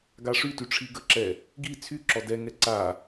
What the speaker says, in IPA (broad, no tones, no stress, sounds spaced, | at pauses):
ɡ a ʂ y t y ʈ͡ʂʰ i ɡ ə ǁ ɛ | ɡ i t͡sʰ y ǁ ɔ d ɛ ŋ ɛ ǀ a